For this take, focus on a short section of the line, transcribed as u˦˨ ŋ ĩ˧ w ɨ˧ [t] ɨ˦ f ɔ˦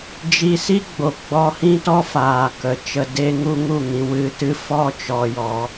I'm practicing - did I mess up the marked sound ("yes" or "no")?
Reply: no